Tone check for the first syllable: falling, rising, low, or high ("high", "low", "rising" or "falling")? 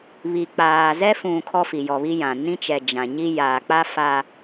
low